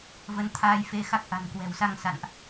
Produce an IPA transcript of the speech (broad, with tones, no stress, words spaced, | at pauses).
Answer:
və˨˦n t̪ʰaː˧jfe˧xa˦˥k̚ ʔa̤˨˩nkwɛ̤˨˩wsa˧ŋ sa̰˧˨nʔ